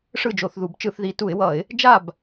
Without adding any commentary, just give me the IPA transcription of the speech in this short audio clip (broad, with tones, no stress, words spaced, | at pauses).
ʂɯ˥˨d͡ʒo˧˩˧θðu˧˩˧b t͡ʃɯ˧˩˧θði˧˩˧tu˧˩˧ɪ̯wʌ˧˩˧ɪ̯ | d͡ʒa˥˨b